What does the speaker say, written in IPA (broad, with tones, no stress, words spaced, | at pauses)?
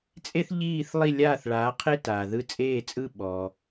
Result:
t͡sʼe˥θʎiː˥˩θ lˠi˥˩lʲaː˥˩θɭaː˩˥ qʰe˥ taː˩ðɯ˧t͡sʼeː˥˩t͡sʼɯ˥˩ ɓɔː˩